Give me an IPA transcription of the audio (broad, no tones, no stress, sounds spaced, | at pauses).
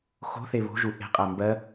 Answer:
x o̤ θ e β o̤ ʒ u ʔ e̤ qʼ æ m b ɜ